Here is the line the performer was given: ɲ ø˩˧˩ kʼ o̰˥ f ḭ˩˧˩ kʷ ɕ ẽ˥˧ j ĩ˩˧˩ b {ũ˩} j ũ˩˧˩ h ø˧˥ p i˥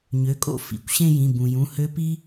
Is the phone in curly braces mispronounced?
no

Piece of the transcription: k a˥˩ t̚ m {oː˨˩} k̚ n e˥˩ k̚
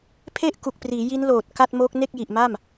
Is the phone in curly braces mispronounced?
yes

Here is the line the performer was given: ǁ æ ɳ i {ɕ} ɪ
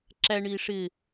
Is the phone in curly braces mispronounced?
yes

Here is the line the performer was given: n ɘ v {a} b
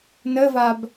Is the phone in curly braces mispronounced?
no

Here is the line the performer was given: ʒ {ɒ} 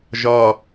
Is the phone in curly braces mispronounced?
no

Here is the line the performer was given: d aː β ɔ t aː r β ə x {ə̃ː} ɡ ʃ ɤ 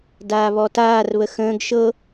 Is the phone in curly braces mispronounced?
no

